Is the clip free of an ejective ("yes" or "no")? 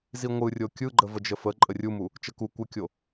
no